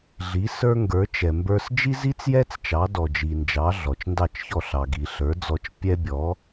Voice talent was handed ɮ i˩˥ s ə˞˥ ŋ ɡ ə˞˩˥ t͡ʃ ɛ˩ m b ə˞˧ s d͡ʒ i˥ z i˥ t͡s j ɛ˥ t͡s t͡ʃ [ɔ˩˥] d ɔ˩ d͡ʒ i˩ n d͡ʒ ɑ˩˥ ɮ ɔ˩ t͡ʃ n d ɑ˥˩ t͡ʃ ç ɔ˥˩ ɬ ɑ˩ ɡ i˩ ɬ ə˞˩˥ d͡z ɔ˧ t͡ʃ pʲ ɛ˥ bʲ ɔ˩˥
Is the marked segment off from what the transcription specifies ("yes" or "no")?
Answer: yes